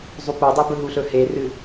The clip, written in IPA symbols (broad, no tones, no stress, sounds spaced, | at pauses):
zˤ u p o dˤ i b ɵ ɦ u ɬ ɵ h e r ɨ